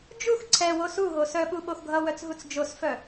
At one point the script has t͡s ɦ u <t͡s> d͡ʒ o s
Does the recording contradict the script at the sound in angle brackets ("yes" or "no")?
no